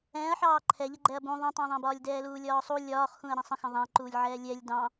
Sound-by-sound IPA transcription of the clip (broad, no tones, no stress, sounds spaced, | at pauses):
ɛ̃ː ɐ̯ ħ ɑː ǃʰ ɛ ʎ ə ɡ͡ǃ ɛ ɐ̯ b ũ ðˤ ũ tˤ ɑ̃ ðˤ æ̃ b ɒː lʲ d ɛː l uː lʲ ɒː sˤ u lʲ ɒː χ x ũ ɐ̯ ɾ ɛ̃ sˤ ə̃ x ə̃ ðˤ æ̃ ǃ uː lʲ ʕ ɛː lʲ ɛ lʲ d ɑ̃